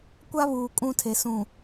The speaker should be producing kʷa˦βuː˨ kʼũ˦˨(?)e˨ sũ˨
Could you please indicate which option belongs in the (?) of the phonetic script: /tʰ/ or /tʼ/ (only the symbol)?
tʰ